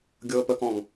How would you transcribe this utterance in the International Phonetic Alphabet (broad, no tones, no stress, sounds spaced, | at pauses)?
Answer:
ɡʲ ɤː p ə k ɔ̃ ŋ